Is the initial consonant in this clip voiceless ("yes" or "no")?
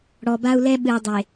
no